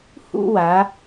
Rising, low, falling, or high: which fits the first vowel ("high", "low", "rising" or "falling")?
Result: falling